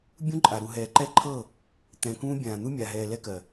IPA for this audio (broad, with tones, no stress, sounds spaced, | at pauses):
bʲ ũ˦ ǃʼ a˨ ɾ u˨ ɦ ɛː˨ ǃ ɛ˦ ǃʰ ɤː˦˨ | t̪ ɛ̃˨ k ũː˦ bʲ ãː˨ n̪ u˦ mʲ a˨ ɦ ɛː˨ l ɛ˦ k ɜ˨